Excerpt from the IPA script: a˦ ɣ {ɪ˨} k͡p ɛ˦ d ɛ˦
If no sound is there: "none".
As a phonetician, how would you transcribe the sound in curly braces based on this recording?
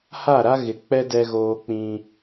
ɪ˨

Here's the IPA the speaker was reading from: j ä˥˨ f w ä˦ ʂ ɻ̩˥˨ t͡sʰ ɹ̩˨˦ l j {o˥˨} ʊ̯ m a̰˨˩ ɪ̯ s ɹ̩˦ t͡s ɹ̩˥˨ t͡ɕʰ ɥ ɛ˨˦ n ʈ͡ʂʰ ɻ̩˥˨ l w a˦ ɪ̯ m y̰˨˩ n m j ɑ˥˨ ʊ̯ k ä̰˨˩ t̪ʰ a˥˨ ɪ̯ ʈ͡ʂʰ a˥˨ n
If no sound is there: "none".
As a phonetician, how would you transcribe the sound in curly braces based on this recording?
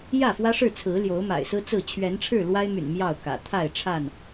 o˨˦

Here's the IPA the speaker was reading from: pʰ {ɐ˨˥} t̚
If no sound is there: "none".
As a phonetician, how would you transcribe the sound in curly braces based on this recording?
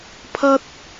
ɐ˥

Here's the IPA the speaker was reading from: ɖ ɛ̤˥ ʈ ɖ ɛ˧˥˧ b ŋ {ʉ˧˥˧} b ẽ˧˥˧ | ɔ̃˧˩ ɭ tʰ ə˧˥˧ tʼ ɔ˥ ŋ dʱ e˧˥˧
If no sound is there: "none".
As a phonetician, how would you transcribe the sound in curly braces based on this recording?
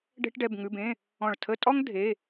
ʉ˧˥˧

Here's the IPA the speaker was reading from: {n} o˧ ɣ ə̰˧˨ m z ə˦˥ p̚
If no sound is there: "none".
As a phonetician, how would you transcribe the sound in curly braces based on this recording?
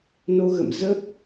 n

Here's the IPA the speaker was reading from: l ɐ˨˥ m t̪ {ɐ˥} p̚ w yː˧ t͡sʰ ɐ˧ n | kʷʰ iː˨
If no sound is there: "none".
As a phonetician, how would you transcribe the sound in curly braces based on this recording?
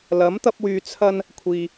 ɐ˥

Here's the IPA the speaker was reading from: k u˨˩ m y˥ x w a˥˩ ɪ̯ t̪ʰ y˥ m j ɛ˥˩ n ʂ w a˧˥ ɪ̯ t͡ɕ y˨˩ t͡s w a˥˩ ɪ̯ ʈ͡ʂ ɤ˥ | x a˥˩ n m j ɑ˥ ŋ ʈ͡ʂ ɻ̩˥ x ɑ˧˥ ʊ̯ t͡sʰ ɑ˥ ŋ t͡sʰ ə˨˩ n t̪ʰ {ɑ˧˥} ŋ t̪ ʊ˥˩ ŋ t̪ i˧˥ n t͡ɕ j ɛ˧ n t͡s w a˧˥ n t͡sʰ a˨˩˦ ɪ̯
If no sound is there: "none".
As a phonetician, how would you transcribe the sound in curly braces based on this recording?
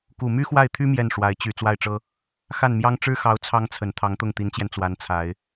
ɑ˧˥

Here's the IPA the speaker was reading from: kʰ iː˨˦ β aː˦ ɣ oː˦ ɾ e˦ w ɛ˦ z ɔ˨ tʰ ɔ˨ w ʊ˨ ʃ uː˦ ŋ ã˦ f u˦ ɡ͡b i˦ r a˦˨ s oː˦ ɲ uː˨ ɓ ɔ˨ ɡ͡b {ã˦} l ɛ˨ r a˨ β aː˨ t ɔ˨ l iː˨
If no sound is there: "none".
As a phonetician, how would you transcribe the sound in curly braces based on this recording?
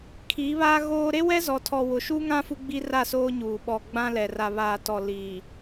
ã˦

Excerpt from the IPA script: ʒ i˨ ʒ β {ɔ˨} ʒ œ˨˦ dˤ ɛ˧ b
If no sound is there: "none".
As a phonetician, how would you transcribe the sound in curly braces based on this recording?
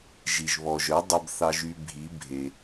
ɔ˨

